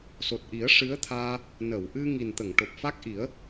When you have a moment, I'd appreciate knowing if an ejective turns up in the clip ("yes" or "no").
no